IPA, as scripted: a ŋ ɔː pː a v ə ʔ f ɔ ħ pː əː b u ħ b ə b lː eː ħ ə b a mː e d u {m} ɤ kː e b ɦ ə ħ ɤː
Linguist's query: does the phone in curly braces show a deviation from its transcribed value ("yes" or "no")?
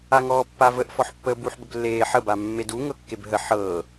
yes